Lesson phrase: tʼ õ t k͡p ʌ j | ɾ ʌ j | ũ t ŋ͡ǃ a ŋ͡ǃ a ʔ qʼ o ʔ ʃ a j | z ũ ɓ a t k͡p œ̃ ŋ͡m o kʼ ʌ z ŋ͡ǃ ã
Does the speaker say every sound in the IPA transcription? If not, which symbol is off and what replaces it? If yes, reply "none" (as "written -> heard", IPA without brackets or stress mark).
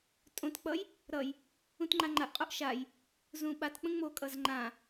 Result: œ̃ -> ə̃